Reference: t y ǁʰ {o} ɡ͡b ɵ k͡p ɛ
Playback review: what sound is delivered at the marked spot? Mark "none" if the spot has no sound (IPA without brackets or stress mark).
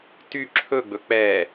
ɵ